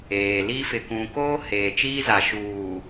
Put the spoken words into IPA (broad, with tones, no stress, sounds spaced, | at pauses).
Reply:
eː˨ l i˦ f ɪ˨ k ũ˨ k oː˦ h eː˨ t͡ʃ iː˦ z a˨ ʃ uː˨